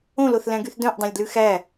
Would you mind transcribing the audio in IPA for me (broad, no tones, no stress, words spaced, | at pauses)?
õloθlæ̃ɡyθ dœ̃ʔdˤɛ̃lʲdlʉ xæ